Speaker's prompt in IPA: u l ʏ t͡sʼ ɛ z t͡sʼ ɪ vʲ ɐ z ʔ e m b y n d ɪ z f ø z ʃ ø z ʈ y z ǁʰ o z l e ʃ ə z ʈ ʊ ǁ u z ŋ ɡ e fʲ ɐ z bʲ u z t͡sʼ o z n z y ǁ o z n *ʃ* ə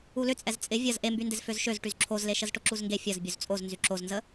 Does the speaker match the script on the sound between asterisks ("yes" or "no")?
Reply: no